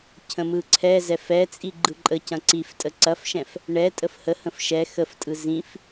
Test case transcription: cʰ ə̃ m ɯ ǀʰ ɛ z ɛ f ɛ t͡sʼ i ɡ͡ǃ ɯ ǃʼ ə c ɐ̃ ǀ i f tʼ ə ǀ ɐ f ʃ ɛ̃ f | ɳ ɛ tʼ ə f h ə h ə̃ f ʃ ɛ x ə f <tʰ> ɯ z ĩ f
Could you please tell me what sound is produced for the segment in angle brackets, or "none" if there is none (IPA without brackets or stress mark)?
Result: tʼ